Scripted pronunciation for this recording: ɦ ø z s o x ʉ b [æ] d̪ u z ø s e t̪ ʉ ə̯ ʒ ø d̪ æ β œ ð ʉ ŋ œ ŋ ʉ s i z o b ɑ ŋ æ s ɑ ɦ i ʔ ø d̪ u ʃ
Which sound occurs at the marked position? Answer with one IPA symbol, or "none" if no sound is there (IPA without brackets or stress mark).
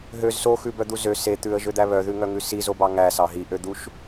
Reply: œ